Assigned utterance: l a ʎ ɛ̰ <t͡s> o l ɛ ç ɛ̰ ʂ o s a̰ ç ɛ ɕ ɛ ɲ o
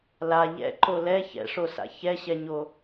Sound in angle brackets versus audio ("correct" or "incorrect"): incorrect